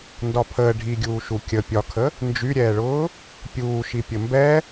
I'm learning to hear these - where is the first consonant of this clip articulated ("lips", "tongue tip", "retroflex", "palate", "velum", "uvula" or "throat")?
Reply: tongue tip